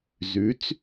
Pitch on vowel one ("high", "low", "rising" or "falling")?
rising